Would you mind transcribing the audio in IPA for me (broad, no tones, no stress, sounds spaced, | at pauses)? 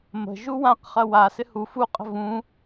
m ə̤ ʒ u w ã q χ ɐ w a s ɪ h u f u qʼ ə̤ v ũ